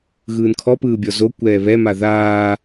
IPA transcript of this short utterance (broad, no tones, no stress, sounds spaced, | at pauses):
ɣ ɯː n kʰ ɔ p ɯː bʲ ɔ z o kʷ ɛː β ɛ m a ð aː